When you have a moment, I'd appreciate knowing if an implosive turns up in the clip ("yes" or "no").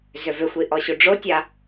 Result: no